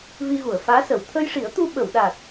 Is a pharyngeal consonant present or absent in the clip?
absent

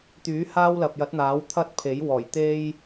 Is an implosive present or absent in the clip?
absent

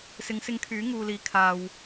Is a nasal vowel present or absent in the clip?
absent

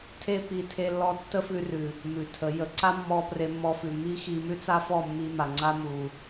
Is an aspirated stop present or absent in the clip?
present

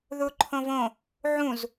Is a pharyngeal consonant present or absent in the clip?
present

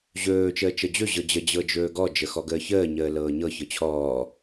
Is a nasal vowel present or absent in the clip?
absent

